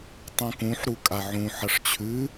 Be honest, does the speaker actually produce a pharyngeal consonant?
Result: yes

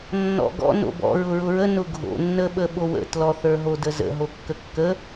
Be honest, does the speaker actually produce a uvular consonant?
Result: no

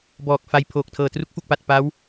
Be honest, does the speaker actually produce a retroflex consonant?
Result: no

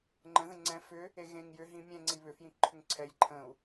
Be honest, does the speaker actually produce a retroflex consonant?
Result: no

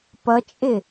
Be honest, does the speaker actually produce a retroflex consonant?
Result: no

